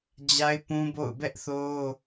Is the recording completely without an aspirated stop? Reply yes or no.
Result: yes